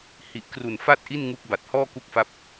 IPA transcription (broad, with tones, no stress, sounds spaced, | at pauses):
h i˨˩ ʔ k r u˨˩ n f a˥˩ t̚ ʔ i˥˩ n ŋ u˦˥ k̚ b a˨˩ t̚ h ɔː˥˩ k u˦˥ k̚ f a˦˥ p̚